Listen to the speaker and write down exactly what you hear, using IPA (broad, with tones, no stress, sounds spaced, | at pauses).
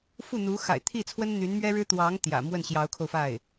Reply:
f u˥˩ n̪ u˧˥ x a̰˨˩ ɪ̯ t̪ʰ i˥˩ t͡sʰ w ə˥ n n̪ y˧˥ n m ɥ ɛ˥ ɻ ɻ̩˥ t̪ w ɑ˧˥ ŋ t̪ j ä̰˨˩ m w ə˥˩ n ɕ j ɑ˧˥ ʊ̯ kʰ o˧ ʊ̯ f a˥˩ ɪ̯